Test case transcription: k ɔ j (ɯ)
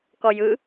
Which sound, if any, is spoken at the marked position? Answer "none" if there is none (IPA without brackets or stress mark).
ɯ